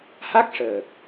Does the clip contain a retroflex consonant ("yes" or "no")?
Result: yes